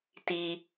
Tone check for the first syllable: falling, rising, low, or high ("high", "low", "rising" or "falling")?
low